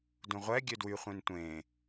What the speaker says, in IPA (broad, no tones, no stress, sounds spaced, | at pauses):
d ũ ʁʷ ɛ ɡʲ ø d w y χʷ ẽ n tʷ ẽː